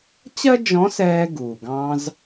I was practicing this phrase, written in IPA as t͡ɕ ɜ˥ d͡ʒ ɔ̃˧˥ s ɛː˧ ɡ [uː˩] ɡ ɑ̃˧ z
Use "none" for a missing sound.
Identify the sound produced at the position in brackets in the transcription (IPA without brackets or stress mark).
uː˩